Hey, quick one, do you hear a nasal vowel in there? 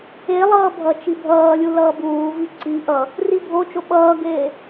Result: no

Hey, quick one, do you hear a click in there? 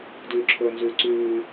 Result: yes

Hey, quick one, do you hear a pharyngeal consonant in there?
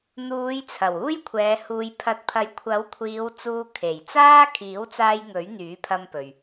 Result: no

